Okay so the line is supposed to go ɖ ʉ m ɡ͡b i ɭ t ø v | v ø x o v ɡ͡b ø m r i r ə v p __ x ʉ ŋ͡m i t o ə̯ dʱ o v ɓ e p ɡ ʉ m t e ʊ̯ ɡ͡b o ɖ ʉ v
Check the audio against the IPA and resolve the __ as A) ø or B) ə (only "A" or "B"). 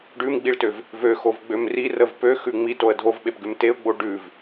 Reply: A